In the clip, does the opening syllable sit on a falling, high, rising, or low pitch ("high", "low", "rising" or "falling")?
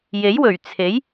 rising